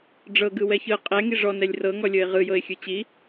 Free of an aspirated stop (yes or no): yes